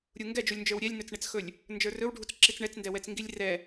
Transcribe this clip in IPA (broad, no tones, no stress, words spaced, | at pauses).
ɾʲuŋɡɛd͡ʒulʲnd͡ʒə˞w ɾʲɛlʲnɵt͡sɳɛt͡sxɵlʲ | nd͡ʒə˞rɵwɖʱut͡s ǁit͡sɳɛt͡sndɛwɛt͡s ŋɡilʲrɛ